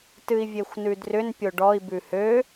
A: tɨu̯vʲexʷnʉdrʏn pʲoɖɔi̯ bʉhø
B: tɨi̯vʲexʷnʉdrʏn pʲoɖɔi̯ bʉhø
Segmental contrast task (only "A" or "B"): B